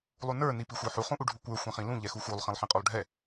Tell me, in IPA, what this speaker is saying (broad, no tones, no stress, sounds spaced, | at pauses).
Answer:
lˠ u n ə˞ n i p i xʷ ə˞ ħ u χ ũ ʔ u ɖʱ u kʷ ə˞ xʷ ɛ̃ χ ĩ l ũ ʎ ɛ x u x u lˠ χ ĩ lˠ ħ ĩ qʼ u lˠ ɖʱ ɛ